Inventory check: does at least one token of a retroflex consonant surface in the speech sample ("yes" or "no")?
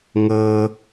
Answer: no